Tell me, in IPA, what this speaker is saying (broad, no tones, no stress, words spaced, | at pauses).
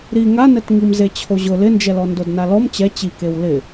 ɾi ŋanɛtŋim zet͡ɕʰoʑʊ lɪnd͡ʒɛlɔ ndodnalɔm t͡ɕɛ t͡ɕikew lɪ